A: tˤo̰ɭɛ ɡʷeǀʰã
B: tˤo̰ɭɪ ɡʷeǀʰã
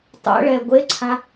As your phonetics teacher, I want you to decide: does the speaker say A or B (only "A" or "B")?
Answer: A